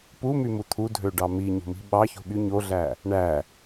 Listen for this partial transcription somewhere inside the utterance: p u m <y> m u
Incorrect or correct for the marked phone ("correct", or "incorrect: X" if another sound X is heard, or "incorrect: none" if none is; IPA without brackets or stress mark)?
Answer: correct